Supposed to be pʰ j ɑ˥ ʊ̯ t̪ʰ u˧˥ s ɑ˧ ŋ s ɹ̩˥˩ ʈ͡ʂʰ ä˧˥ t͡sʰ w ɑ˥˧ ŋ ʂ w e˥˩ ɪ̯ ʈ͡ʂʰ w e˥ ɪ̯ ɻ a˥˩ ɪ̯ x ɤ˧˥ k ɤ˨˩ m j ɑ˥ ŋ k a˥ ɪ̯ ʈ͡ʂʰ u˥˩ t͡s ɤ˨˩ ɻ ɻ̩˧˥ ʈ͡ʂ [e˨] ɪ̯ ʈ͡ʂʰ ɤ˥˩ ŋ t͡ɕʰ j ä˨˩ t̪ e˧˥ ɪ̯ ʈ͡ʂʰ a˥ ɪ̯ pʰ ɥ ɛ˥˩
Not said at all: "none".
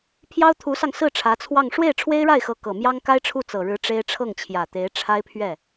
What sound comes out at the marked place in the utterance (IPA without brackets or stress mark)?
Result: e˥